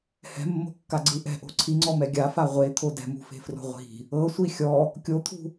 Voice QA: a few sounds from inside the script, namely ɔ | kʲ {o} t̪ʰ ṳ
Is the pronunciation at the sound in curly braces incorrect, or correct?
correct